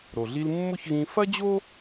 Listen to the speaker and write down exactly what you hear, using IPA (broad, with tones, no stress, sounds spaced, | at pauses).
ɾ o˩ ɮ i˧ l mː ʊ˥ ç ɣ ĩ˧ f ɐ˥ d͡ʑ o˥